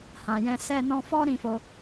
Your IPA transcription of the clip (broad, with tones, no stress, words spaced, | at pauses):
hã˨jɛ̃˧ sɛ˧nɔ̃˧fɔ˦ ɾĩ˦˨fo˧